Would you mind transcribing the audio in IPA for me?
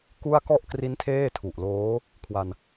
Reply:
k u˥˩ a̯ k ɔ˥˩ ʔ k r i˦˥ n tʰ eː˥˩ tʰ u˨˩ ʔ l oː˦˥ | kʰ w a˧ n

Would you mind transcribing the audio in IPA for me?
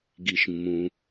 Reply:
ɡ i˩ ʃ mː ũ˩

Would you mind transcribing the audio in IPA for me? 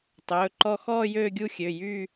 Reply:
tˤ ɵː˩˧˩ ǃ ɔ˦˨ x ɔː˦˨ j øː˦˨ ɡʲ u˦˨ xʲ ø˩˧˩ j yː˦˨

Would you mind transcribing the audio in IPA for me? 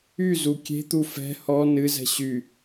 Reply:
y z u kʲ e̤ t̪ u f ɛ̤ h ɔ n ɨ z ɛ̤ ɕ y

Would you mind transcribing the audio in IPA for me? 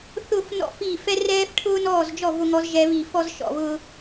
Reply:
θ ʊ˥˨ f n ɔ̰˥ f i˥˨ f ɛ˥ r ɛː˥ f ʈʰ ʊː˥ n ɔː˥˨ z d͡ʒ ɔ˥˨ v ʊ˥ ŋ ɔ˥ z ʒ ɛ˥ β i˥˨ f ɔ˥ z ʃ ɔ̰˥˨ β ʊː˥

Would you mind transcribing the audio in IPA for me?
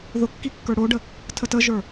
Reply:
ð ʊ kː i kː ə˞ ɽ o ɖ ə | tʰ ə t ə ʒ ə˞

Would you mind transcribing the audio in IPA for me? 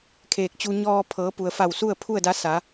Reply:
kʰ eː˧˩ k̚ t͡ɕ u˧ ɲ ɔː˧ pʰ ɤː˩˧ p u˩ ə̯ f a˧˩ w s u˥˨ ə̯ pʰ u˥˨ ə̯ d a˧˥ s a˩˧

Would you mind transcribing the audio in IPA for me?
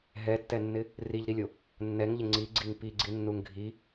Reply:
ɦ ɛ tː ɛ nː ɪ | r i ʎ ɾ i lʲ o | nː ɛ ŋ ʎ ɪ ŋ͡ǀ i ɡ͡ǀ i ŋ p i ɡ͡ǀ i nː u ŋ ɡʱ i

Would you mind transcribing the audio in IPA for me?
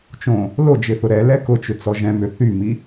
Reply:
t͡ʃ õ | l o d͡ʒ ɪ θ ʊ ɾ ɛ l ɛ k ʊ t͡ʃ ʏ t͡s ɔ ʒ ɛ̃ m ʏ θ y m i

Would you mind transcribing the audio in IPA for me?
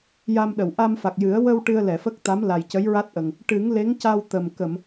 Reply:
j a˧ m ɗ ə˨˩˨ w ʔ a˧ m f a˨˩ k̚ j ɨ˨˩˦ ə̯ w ə˧ w ʈ ɨ˧ ə̯ l ɛ˨˩˨ f ə˦˥ k̚ t̪ a˧˥ m l a˨˩ j c ə˧˥ j ɹ a˦˥ t̚ ʔ ə˨˩ ŋ | ʈ ɨ˨˩˦ ŋ l e˧˥ ŋ c a˧ w t̪ ə˨˩ m k ə˨˩˨ m

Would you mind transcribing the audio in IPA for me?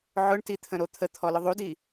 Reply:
ʕ ʊ ɳ t i t̪ʰ ə̃ ɾ o t̪ʰ ə t̪ʰ ɔ l ʊ ðˤ u d i

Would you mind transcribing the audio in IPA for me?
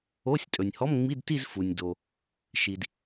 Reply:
o˧˥˧ sʲ tʼ ɵ˩ nʲ h ɔ˧˥˧ m ŋ͡m i˧˥˧ d t i˥˧ z f u˩ nʲ d o˩ | ʃ i˩ d

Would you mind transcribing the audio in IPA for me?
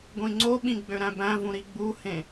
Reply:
ɡʷ ĩ ŋ͡ǀ o ɓ ĩ ɡ͡b ø ɾ æ̃ b æ̃ v ũ ɾ i ɡ͡b u h ẽ

